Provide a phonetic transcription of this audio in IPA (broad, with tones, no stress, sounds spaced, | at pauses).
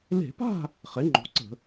l e̤˧˩˧ p a̤˥˨ | χ e˩˥ ŋ͡ǃ o̤˩˥ ǀ ə̤˧˩˧